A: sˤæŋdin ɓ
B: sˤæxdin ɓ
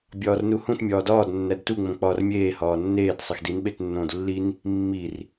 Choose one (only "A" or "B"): B